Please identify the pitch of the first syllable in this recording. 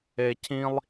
low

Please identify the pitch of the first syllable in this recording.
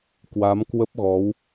rising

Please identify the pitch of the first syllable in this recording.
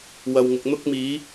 low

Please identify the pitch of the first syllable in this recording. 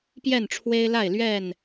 falling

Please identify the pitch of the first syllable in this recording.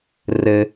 high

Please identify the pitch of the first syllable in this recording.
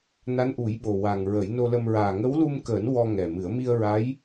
rising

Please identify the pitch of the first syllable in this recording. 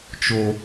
high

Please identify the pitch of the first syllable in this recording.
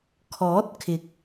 rising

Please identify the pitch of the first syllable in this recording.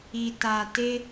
low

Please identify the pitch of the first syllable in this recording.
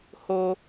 high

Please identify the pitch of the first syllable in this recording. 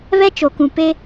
high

